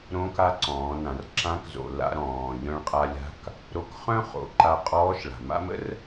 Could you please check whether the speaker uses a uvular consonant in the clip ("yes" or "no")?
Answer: yes